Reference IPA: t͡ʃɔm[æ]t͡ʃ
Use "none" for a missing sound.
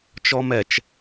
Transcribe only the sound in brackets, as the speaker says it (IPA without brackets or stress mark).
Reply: ɛ